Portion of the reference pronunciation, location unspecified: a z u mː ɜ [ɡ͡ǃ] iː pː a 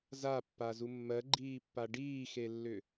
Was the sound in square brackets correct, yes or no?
yes